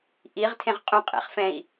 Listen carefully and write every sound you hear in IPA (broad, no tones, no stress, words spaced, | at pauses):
ʔiʁtʰẽʁ qʼũqʼḛχfɛ̃i̯